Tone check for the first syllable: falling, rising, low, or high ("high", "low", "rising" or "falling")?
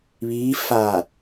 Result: rising